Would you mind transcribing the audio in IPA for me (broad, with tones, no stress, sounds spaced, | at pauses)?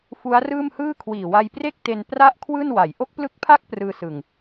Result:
f u˦˥ a̯ r ɯː˥˩ m h ɯː˥˩ kʰ w iː˨˩ w a˧ j p r e˥˩ k̚ t e˧ n p r a˥˩ ʔ kʰ w ɯː˥˩ n w a˩˦ j ʔ o˦˥ k̚ p l ɯ˦˥ k̚ pʰ a˥˩ k̚ p r ɯː˧ s ɯ˨˩ ŋ